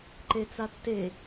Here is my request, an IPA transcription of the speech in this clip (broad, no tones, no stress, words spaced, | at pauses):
ǃet͡satːe